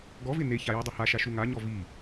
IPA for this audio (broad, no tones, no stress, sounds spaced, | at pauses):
ɡ ɔ v ɪ n e ç a j i dˤ ɪ h a ʃ a ʃ u ŋ a ɲ ɔ v i